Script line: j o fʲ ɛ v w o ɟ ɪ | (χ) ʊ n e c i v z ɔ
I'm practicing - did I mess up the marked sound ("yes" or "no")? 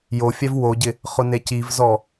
no